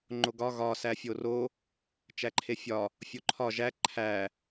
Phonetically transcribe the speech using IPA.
ŋ͡ǃ o ɡ ɒ ɣ ɒ s æ fʲ o r o | t͡ʃ æ ǃʰ e fʲ ɒ | fʲ o ǃʰ ɒ ʒ æ ǃʰ æ

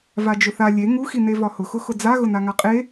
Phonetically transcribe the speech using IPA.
v a d͡ʒ ʊ θ a lʲ e ŋ u x i n e v ɒ h ʊ x ʊ x ʊ d͡z a ɣ ʊ n a ŋ a qʼ e

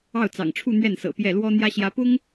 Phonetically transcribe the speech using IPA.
ɑ˥˩ ʊ̯ t͡s ɑ̰˨˩ ŋ ʈ͡ʂʰ u˥˧ n̪ ɥ ɛ˥˩ n s ɤ̰˨˩ p j ɛ˥˩ l w ɔ˥ n̪ j ä˥ ɕ j ä˧˥ p ʊ˥ ŋ

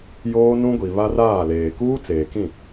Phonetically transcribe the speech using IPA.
j oː˦ n ũ˦ ɡʷ i˨ β a˦ r aː˦˨ l eː˨ k uː˦ t͡s eː˨ k ĩ˦˨

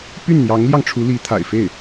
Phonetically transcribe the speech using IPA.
p y˥˩ n n̪ j ɑ˧˥ ŋ l j ɑ˧ ŋ ʈ͡ʂʰ u˧˥ l i˧˥ t̪ʰ a̰˨˩ ɪ̯ f e˥˩ ɪ̯

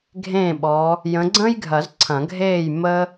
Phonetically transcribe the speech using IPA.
ɡʱ ẽː˥˩ ɓ ɔ˨˦ | j ə̃˨˦ ɡ͡ǀ ə̃ː˥ j ɡʱ ɐ˨˩˦ z ǀʰ ɐ̃˨˩˦ ɡʱ eː˥˩ j m ə˥

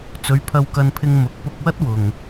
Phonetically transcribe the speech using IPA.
t͡s ɵ˨˧ ɥ pʰ ɐ˧ w k ɐ˧ n pʰ ɪ˧ ŋ m ʊ˨˥ k̚ p ʊ˧ k̚ w ɐ˥ t̚ w ʊ˨ ŋ

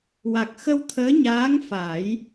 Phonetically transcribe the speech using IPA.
w a˨˩ k̚ x ə˧ w t̪ʰ əː˧˥ ɲ aː˧˥ ŋ f a˨˩˦ j

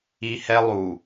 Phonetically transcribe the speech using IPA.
i˦ h ɛ˦ lˠ u˨

